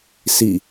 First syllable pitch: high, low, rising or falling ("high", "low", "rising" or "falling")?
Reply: falling